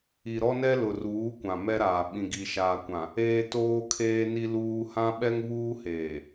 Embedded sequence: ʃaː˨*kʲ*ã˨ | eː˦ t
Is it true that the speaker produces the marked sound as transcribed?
no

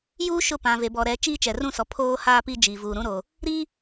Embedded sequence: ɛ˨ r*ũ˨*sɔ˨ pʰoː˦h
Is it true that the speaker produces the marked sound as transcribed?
no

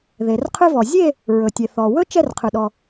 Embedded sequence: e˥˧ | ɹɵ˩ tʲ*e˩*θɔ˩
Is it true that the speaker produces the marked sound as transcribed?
yes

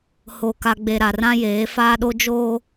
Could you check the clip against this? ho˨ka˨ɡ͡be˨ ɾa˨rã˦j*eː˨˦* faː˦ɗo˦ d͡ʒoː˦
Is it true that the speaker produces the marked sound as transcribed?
yes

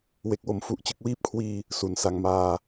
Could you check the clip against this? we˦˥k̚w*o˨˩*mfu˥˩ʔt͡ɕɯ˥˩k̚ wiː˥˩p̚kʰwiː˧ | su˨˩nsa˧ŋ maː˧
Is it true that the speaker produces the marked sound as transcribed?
no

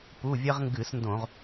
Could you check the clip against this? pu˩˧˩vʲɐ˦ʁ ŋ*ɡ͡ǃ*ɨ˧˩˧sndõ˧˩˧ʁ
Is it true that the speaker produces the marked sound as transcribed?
no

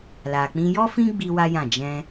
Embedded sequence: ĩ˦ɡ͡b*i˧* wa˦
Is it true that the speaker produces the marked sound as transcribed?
yes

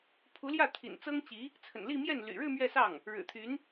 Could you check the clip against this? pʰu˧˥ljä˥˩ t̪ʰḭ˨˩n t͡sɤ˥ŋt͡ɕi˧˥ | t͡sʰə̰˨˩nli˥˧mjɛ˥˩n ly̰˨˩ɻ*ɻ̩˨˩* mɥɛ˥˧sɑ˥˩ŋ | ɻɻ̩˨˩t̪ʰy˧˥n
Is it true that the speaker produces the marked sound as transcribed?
no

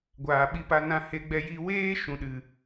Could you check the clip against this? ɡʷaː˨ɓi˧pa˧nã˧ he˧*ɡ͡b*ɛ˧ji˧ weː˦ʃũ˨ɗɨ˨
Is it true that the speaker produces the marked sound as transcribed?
yes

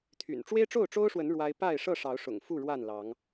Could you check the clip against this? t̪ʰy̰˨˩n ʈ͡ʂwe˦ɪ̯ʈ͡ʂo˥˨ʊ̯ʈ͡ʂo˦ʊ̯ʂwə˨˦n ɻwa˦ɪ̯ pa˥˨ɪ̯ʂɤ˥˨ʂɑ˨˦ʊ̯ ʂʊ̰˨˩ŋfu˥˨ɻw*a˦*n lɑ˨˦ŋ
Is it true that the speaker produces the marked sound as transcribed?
no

